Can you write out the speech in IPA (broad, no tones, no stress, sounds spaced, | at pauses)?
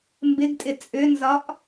m b ɪ ɡ tʼ ɪ t͡sʼ ʏ n z ɒ ʔ